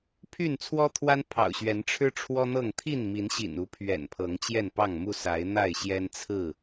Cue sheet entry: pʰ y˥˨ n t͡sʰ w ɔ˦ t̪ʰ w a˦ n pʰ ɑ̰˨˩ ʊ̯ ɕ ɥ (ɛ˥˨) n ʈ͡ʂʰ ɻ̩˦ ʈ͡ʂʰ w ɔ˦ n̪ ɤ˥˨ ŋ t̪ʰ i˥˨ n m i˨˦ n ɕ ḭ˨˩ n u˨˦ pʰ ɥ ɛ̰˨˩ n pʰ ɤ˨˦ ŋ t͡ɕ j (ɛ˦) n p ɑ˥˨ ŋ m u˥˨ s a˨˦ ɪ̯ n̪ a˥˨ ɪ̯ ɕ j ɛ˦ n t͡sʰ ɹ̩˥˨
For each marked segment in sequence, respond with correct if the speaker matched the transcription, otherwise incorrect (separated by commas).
incorrect, incorrect